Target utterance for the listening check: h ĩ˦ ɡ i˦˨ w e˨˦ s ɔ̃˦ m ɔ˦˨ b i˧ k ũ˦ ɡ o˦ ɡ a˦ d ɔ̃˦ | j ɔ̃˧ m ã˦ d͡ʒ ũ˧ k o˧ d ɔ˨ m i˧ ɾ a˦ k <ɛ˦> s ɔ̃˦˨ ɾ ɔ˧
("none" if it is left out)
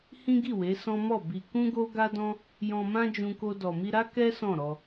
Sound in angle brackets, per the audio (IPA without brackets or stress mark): ɛ˦